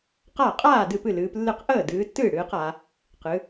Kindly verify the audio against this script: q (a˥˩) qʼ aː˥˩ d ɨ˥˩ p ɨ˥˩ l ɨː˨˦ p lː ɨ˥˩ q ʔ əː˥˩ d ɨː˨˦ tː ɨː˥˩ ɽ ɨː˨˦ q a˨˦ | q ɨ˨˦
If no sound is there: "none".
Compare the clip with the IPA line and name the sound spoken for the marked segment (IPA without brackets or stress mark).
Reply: a˥˩